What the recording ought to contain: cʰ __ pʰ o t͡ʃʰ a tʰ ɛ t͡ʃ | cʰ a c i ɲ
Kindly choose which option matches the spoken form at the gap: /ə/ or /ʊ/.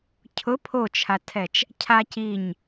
ʊ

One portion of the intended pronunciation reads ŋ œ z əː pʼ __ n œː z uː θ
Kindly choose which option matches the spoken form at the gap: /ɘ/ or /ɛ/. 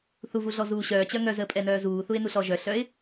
ɛ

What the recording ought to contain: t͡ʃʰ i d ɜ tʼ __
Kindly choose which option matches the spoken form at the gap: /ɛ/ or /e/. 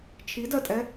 ɛ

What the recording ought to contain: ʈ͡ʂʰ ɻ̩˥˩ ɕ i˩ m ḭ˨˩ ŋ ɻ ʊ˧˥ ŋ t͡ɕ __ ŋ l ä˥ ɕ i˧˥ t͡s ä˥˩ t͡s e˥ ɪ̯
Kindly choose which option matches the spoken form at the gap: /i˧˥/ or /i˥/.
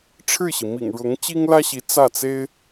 i˥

